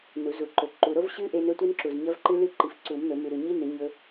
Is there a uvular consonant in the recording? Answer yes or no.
no